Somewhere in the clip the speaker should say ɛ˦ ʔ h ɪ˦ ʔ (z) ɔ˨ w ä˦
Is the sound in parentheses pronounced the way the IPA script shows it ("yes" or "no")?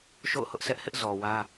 yes